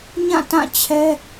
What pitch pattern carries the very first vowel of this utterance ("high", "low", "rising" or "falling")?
falling